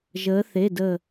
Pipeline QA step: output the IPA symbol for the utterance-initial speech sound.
ʒ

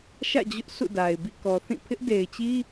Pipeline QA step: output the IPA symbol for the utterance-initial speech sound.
ʃ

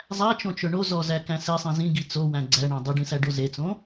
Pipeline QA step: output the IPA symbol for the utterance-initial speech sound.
zˤ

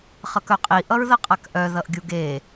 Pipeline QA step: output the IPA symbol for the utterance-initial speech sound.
χ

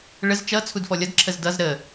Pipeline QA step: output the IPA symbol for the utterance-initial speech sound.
ɭ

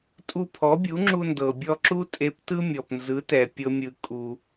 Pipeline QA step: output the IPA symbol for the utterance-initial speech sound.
tʼ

